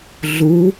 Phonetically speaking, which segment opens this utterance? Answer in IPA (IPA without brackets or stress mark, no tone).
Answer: ɮ